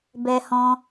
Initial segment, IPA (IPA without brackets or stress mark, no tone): b